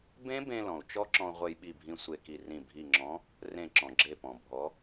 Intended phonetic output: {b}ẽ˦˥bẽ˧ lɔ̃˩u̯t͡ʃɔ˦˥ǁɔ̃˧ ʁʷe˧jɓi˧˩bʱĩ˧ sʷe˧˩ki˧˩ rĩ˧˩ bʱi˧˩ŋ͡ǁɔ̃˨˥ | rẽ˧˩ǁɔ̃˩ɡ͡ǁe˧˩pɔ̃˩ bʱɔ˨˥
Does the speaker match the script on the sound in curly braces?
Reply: yes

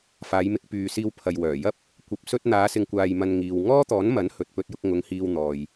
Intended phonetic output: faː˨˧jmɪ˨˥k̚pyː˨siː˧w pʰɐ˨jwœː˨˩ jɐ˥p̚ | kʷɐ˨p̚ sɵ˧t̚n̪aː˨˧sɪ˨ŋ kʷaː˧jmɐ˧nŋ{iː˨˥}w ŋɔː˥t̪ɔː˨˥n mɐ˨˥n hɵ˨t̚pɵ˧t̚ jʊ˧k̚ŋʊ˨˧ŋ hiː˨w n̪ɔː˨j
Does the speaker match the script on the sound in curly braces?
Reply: no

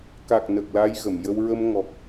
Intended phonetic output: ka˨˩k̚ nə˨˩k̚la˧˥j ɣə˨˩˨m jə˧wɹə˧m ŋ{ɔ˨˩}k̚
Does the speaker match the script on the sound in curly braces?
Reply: yes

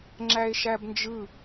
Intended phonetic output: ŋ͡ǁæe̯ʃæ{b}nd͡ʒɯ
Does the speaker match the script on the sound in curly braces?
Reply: yes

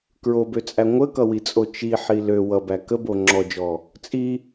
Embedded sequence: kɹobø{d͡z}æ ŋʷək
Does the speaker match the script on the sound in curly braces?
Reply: no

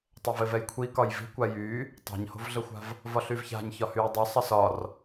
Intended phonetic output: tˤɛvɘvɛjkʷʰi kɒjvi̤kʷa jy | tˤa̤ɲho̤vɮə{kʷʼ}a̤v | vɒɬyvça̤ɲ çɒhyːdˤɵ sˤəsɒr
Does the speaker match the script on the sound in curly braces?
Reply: no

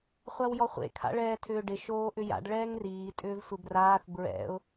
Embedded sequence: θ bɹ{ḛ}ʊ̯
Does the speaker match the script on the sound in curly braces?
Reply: no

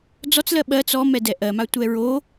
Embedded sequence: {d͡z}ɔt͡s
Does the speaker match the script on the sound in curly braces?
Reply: yes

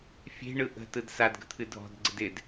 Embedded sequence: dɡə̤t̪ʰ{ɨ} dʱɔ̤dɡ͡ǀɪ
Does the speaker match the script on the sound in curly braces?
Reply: yes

